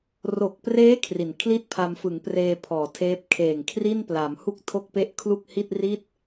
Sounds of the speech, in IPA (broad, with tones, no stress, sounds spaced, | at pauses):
r o˨˩ k̚ p r eː˦˥ kʰ r i˨˩ n kʰ l i˥˩ t̚ pʰ a˧ m f ɯ˩˦ ŋ p r eː˧ pʰ ɔː˩˦ tʰ eː˦˥ p̚ kʰ eː˨˩ ŋ kʰ r i˥˩ n p l a˩˦ m h u˥˩ k̚ tʰ o˥˩ k̚ p e˥˩ ʔ kʰ l u˥˩ k̚ h i˥˩ t̚ r i˥˩ t̚